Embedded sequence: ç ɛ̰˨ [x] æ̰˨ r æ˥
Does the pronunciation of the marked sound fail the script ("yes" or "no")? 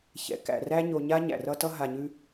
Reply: yes